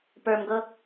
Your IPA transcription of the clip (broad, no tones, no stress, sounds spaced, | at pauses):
p ə˞ m ɡ ɤ